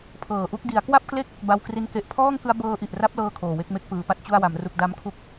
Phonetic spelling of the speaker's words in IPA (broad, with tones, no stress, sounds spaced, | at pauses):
pʰ ɤː˨˩ ʔ u˥˩ k̚ d i˩˦ a̯ k w a˥˩ p̚ k l e˥˩ k̚ | b a˧ w k r i˧ n k e˨˩ ʔ pʰ ɔː˥˩ ŋ k ɯ˦˥ a̯ b ɤː˧ ʔ i˨˩ ʔ r a˦˥ p̚ l ɤː˥˩ kʰ oː˨˩ w e˥˩ k̚ m e˦˥ k̚ p ɯː˩˦ p a˦˥ t̚ t͡ɕ u˥˩ a̯ w a˩˦ m r u˨˩ k̚ d a˦˥ m kʰ u˥˩ k̚